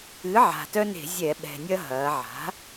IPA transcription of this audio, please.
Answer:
ɨ˩˥ ʕ a̤˨˩ t œ˦ n e̤˧˩˧ zʲ ɛ˧˩˧ ɓ ɛ̤˨˩ nʲ ɐ˦ ɦ ɐː˩˧ ʕ a̤˩˥

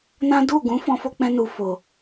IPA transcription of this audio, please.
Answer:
n ã˦ d u˦˨ ɡ ũ˨˦ f ɔ̃˦ f o˦ k͡p ɛ̃˦ n u˧ f o˨

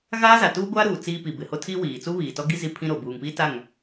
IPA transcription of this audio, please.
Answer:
ɣ aː˦ z a˨ t uː˦ ɡʷ aː˦ ɾ uː˨ t͡s iː˦ p i˨ b ɪ˨ h o˦ tʰ i˦ w iː˨ t͡s u˦ β iː˨ t ɔ˦ ɡ i˦ z i˦ pʰ ĩ˦ ɾ o˨ b uː˨ ŋ p i˦ t a˦˨ ŋ

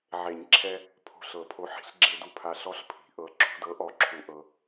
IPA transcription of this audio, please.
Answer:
ʕ e˨˩˦ ɲ ǁʰ ɛ˧ | pʰ o̤˧ ɬ ɤ˨˩˦ pʰ o˨˥ ħ i̤˨˩˦ ɬ ɡ͡ǁ e˧ d u˧ pʰ a˧ ɬ ɔ˨˥ ɬ pʰ i̤˨˩˦ ʔ ɤ˨˥ ǁʰ ṳ˧ d ɤ˨˥ ʔ ɔ˨˥ ǁʰ u˧ ʔ ɤ˧

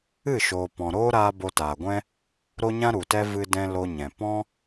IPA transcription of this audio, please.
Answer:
ɨ˦˨ ʃ oː˨ p ɔ̃˨ ɾ oː˦ ɾ aː˧ b o˧ t aː˨ ɡʷ ɛ̃˦ | ɾ o˦ ɲ ã˦ ɾ u˨ t ɛ˦ v ɨ˧ d ɛ̃˧ l o˧ ɲ ɛ̃˨ p ɔ̃˦

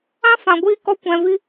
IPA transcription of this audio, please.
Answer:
ã˦ f ã˨ ɡʷ iː˧ k ɔ˧ kʷ ɛ̃˨ v i˧

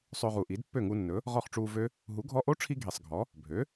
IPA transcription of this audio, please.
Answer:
sˤ ø˧ ʁ u˨˩ ʔ i˩˥ d pː ø˥˩ ŋ u˧ nː ɵ˩˥ | ʁ ɔ˥˩ χ ʈ͡ʂ uː˧ v ø˦˥ | ɦ u˩˥ ɡʱ ɔ˧ ʔ o˦˥ ʈ͡ʂʰ i˧ ɡʱ i˨˩ sˤ ɡʱ ɔ˩˥ | bʱ ø˩˥

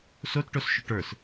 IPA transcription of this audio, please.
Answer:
s o t ʈ o s ʃ ɵ ʈ ə˞ s

